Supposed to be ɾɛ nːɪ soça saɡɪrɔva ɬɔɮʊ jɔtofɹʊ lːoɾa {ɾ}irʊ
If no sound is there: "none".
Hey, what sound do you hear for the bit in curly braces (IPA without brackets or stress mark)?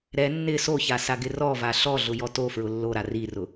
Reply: r